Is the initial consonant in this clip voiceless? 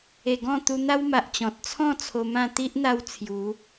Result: no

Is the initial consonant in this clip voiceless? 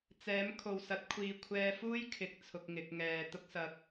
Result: yes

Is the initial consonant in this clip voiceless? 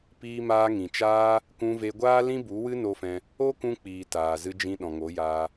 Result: yes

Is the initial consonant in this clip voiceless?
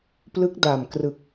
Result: yes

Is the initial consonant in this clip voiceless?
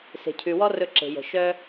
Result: yes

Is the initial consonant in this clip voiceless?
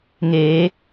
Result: no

